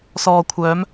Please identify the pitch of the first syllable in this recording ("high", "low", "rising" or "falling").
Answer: low